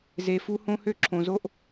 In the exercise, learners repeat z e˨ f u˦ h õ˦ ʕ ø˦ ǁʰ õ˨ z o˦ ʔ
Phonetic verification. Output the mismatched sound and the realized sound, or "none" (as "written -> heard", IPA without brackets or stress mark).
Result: ʕ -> h